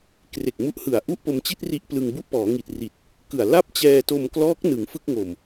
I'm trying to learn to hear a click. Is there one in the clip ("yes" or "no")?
no